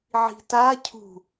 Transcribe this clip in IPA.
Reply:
ʕi̤ta cʰṳ

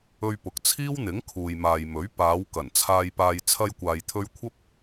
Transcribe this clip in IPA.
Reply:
ɵ˧ɥpʊ˨k̚ t͡sʰiː˥wn̪ɪ˨˥ŋ kʰuː˨jmaː˨jmɵ˨˥ɥ paː˨˧w kɐ˨˩nt͡sʰaː˧jpaː˧j t͡sʰɐ˧jkʷaː˨jt̪ʰɵ˧ɥ kʷʰɐ˥p̚

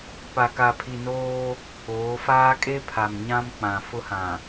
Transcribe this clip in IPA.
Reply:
pa˨ka˨pʰi˨ noː˦ | oː˨˦faː˦ kʼe˦pʰa˨m ɲã˦m k͡pã˨fʊ˦hã˨

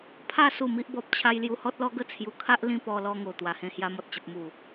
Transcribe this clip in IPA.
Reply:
pʰa˥˧ su˥˧mi˦ʔbɔ˦p̚t͡ɕʰa˦j lju˧hɔ˦t̚lɔ˦ɡə˥˧ t͡sʰju˧kʰa˦ʔ lĩ˦pɔ˧lɔ˧ŋo˨˩ t̪wa˨˩hẽ˧ hja˧mɔ˨t̚t͡ɕə˨p̚ mu˨˩

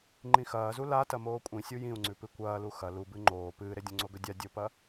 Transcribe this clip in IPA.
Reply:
ŋ͡ǃĩxɐːzu latɐ moːkʷʼĩsʲu jĩu̯ŋ͡ǀʉpɨ kʷɐːlu xɐ lubɨ ŋ͡ǃoː pɨːɾedʲõŋ͡ǀo ɡɵdʲa dʲopɐ

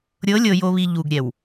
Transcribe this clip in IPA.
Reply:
ɾʲɤ˨˦lʲɤ˨ jo˨βi˨ ʎu˨ɡɾʲɛ˨w

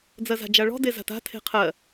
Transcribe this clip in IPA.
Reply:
d͡zɜza̤d͡ʒaɭɔ̤ deza̤ta̤ tʰe̤qʰɜ

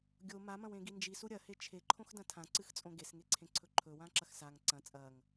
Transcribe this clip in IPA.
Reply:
ɡʲo mamɐ̃wẽɡi nd͡ʒisu ɾʲɐhe t͡ʃʰeǃʰõxdɐ̃ tʰãǀɨxt͡sʼõ ɡesŋeǀʰẽǀʰɵ ǃʰɵwãǁɐx saŋ ǀɐ̃ t͡sʼɐŋ

